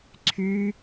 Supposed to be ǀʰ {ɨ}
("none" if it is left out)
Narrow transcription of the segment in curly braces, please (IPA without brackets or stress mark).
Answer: y